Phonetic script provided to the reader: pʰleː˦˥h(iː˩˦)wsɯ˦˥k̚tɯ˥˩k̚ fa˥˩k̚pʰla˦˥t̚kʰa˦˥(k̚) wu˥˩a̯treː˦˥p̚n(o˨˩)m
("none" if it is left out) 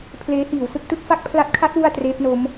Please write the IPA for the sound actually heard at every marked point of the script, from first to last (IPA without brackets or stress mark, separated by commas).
iː˩˦, t̚, o˦˥